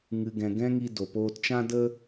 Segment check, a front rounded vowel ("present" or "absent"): absent